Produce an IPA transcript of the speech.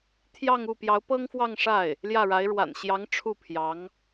t̪ʰ j ɑ˥˧ ŋ u˥˩ p j ɑ˧˥ ʊ̯ p ɤ˥ ŋ f w ɑ˥˧ ŋ ʂ a˥˩ ɪ̯ | l j ä˥˩ ɻ a˧˥ ɪ̯ ɻ w a̰˨˩ n ɕ j ɑ˧˥ ŋ ʈ͡ʂʰ u˥˩ pʰ j ɑ˧˥ ŋ

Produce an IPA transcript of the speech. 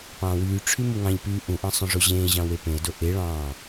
p ɑ̃ː w yː ʈ͡ʂʰ y m u ŋ ɑ̃ ʎ p yː ʔ ũ ʔ ɑ̃ sˤ õ ʐ o ʑ ẽː ʑ ɑ̃ w e p ẽ ə̯ d o ʔ e ɭ ɑ̃ː

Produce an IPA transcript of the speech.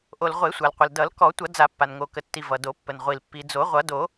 ʔ o˩ l ʁʷ e˨˩˦ sʷ a˩ l qʷ ə˩ l d ʌ˨˩˦ l k ɔ˨˩˦ tʷ ʌ˨˩˦ d͡z a˨˩˦ pː a˩ n ŋ o˩ k ə˩ tː i˩ v ʌ˩ d o˨˩˦ pː ə˩ n ʁʷ i˩ l pː i˩ d͡z o˨˩˦ ʁʷ ʌ˨˩˦ d o˨˩˦

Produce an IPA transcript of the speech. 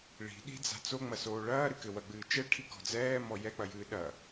ɭ i̤ ɗ i̤ d͡z a̤ t͡s o ŋ͡m ɐ s oː ɭ ɐː ɾ ɨ k ɘ w ɐ ɡ͡b ɨː t͡ʃ ɛ ʈʰ i k ɔ̤ d͡z ɛː m ɔ j ɛ k͡p ɐ j ɨː ɗ ɐ

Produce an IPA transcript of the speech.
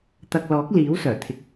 t̪ ɐ˧ k̚ l ɔː˨˥ k̚ l iː˨˥ w s œː˨˩ t̪ʰ ɪ˨ k̚

